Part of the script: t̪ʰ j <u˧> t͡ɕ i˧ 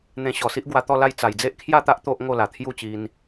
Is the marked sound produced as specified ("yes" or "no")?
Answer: no